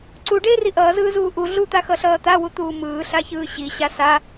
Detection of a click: present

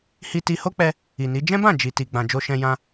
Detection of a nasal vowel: present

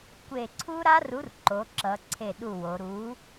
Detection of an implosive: present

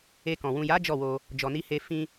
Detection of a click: absent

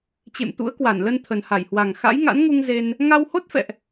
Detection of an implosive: absent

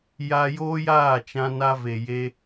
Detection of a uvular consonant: absent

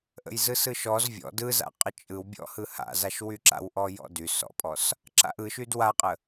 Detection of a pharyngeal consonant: absent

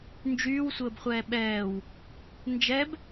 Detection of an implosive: present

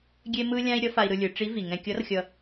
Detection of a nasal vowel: present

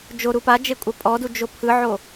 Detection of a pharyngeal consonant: present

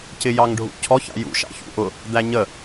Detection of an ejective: absent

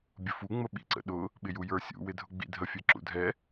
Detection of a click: present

